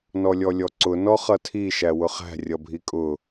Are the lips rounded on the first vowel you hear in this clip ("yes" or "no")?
yes